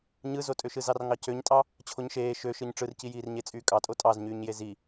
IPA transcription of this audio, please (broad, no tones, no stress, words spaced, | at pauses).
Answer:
ɲɯzotʼøʃɯ zɑrŋɑcøɲtʼɑ | t͡ɕʰoɲʃeː ʃøʃɯɲ ʈ͡ʂɯrcijiːrɲe t͡sʼyːkʼɑtʼo tʼɑzɲyːɲje zi